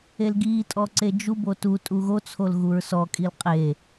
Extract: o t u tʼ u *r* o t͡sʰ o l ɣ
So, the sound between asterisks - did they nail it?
no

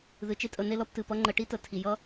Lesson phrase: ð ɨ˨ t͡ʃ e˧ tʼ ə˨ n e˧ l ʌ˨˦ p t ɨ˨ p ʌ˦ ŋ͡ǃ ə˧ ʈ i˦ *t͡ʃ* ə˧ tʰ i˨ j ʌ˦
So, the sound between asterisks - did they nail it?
no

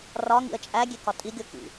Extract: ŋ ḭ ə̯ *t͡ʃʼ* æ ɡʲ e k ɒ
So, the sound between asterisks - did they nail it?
yes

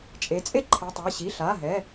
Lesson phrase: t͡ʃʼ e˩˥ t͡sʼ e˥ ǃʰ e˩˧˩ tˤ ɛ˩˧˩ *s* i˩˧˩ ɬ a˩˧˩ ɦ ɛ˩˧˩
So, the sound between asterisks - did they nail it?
no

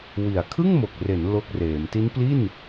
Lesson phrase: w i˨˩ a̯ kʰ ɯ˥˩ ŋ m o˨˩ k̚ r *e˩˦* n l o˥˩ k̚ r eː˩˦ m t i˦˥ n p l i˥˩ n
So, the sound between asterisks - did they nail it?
yes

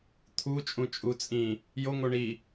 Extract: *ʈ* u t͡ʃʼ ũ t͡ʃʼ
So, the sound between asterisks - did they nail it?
no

